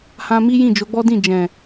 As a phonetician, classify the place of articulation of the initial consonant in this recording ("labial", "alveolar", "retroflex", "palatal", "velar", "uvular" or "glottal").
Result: glottal